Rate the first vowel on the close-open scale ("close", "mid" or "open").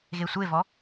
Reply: mid